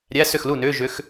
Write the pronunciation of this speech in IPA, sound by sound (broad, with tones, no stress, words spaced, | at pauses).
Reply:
ɾʲæ˧˥˧sʏ˥˩xlu˥˩nʏː˧˥˧ ʒʏ˧˥x